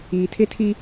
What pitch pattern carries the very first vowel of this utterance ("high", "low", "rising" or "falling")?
low